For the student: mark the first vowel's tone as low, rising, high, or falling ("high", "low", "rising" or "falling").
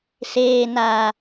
low